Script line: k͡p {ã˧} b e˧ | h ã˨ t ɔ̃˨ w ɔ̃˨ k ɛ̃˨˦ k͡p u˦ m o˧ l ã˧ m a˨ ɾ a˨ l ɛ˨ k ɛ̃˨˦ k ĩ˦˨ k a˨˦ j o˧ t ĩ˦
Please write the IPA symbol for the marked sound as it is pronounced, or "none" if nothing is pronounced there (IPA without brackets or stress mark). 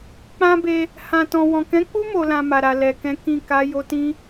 ã˦